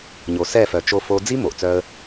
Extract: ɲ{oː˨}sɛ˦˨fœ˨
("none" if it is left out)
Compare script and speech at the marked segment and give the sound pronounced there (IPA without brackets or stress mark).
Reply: o˨